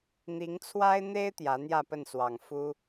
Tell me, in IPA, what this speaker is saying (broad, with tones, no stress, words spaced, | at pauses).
n̪i˧˥ŋt͡sʰwa˥ɪ̯n̪e˥ɪ̯ t̪jä˧˥n̪jä˥˧pə˥˩nswɑ˨˩ŋ fu˥